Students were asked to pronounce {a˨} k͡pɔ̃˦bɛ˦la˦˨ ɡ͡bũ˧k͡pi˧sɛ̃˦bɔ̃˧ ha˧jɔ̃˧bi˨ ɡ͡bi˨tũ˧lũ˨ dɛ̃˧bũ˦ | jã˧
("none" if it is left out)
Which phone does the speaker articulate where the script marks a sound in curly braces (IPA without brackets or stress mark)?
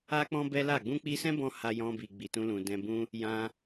a˦